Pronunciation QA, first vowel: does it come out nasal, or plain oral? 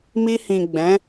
oral